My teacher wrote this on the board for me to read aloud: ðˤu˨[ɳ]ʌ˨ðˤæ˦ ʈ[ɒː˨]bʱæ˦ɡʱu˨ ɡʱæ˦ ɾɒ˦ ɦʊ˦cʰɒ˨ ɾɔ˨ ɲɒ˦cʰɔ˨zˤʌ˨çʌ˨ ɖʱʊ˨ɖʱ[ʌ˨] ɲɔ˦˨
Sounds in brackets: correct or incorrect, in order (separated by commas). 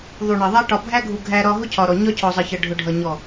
correct, incorrect, correct